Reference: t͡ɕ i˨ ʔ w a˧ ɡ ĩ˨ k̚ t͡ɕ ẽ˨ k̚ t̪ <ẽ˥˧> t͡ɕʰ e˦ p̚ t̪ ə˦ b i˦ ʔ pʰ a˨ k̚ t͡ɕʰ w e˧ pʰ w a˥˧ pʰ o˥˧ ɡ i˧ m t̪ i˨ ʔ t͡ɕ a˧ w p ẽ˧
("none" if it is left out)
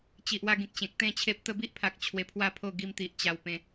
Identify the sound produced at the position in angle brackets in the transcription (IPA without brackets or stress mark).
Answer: ẽ˥˧